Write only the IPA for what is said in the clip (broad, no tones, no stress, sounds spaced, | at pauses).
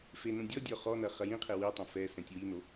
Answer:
f e n õ dʲ ɔ dʲ ɔ χ ɔ n ɐ χ ɐ j ĩ qʰ e w i tˤ ɛ̃ f ɛ s ɛ̃ tʲ w i n o